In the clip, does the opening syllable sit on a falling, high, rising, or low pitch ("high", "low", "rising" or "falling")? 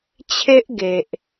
high